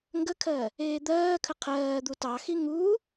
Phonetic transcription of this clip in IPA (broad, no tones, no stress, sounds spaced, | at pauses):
ŋ ɡ ə kʰ ɜ | eː d̪ ɜː kʰ ə qʰ ɜː d̪ u t ɑ x i ŋ u